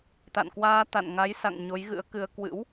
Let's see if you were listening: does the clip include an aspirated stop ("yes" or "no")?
no